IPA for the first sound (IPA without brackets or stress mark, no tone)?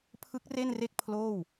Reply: pʰ